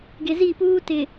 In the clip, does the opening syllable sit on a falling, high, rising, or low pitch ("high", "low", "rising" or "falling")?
low